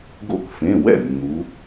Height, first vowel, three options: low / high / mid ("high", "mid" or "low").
mid